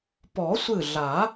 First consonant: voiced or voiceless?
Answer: voiceless